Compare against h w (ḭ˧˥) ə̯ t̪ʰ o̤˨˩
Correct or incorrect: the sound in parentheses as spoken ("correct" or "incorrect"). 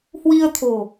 incorrect